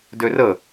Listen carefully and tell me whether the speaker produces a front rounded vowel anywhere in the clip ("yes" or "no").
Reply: yes